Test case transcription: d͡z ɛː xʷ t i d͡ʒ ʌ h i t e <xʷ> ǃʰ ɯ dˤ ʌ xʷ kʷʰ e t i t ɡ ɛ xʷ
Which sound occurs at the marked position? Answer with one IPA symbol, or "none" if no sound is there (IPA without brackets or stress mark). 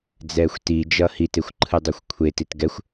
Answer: xʷ